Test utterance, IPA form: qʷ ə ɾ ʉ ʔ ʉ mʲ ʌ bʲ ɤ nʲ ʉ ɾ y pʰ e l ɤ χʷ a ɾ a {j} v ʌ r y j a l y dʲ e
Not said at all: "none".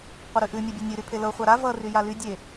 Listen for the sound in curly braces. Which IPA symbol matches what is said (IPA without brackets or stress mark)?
none